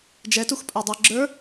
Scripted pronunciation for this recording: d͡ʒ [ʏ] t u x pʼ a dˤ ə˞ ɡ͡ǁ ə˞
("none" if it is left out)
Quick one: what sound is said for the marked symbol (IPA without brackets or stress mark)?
ɛ